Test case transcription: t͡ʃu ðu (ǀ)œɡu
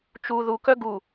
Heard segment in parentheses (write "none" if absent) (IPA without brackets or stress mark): k